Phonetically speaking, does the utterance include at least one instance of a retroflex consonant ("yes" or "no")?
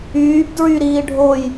yes